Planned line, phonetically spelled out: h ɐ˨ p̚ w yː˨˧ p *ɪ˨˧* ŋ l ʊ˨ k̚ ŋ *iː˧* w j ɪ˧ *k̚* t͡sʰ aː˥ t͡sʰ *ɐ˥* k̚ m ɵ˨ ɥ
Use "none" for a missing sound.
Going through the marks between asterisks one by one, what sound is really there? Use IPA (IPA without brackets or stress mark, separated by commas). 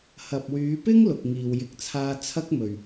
ɪ˥, iː˨, k̚, ɐ˥